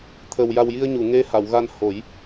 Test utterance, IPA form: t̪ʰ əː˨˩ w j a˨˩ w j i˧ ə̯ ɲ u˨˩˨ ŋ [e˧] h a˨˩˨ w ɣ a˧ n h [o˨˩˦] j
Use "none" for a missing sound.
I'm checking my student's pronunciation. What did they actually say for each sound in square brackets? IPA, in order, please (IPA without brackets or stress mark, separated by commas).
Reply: e˧, o˨˩˦